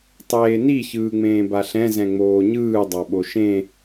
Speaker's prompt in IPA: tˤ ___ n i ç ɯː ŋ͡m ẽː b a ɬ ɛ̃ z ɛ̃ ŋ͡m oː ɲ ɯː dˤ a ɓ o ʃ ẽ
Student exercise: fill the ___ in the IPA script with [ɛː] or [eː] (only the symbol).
eː